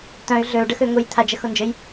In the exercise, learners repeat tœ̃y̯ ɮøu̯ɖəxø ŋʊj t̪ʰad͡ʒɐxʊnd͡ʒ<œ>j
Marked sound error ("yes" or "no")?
yes